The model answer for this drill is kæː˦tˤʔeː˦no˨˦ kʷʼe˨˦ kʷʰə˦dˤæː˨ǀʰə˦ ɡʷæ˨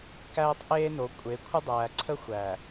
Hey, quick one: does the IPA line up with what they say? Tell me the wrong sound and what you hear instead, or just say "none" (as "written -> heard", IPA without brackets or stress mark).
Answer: ɡʷ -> xʷ